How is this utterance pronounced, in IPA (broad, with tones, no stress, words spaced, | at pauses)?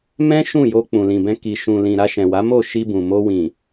mɛ̃˦ ʃũ˦˨jo˧ k͡pũ˨lĩ˨bɛ̃˧ ki˧ ʃũ˨lĩ˨ ɾa˧ʃɛ̃˨wa˨˦mo˦˨ ʃi˧bũ˨mo˧ wĩ˨